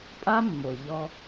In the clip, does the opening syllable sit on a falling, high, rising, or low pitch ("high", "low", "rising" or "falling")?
high